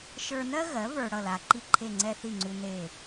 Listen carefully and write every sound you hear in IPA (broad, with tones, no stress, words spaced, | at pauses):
ʃə˞˧nɜ˥ɣɜ˩˥ və˞˧ɽʌ˥˩la˩ ǃi˥ǃʰe˥˩ŋ͡ǀɛ˥ θi˥˩ŋ͡ǀu˧ ne˥˩